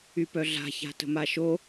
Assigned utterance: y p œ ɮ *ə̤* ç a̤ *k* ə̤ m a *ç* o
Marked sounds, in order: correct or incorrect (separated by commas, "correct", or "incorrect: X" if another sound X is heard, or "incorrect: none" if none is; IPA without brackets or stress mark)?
incorrect: a̤, incorrect: t, incorrect: ʃ